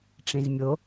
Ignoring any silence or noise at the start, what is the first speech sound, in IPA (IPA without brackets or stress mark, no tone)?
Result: ʈ͡ʂ